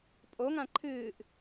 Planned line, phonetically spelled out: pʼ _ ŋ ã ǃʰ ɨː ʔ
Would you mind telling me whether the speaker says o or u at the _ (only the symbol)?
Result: o